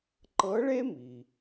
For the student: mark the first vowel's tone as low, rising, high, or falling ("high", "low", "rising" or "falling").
rising